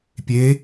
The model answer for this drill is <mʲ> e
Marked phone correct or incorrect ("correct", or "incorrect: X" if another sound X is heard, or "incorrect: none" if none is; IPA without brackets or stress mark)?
incorrect: pʲ